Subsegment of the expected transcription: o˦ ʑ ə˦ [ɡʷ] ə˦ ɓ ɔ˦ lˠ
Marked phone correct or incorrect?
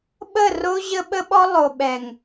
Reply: incorrect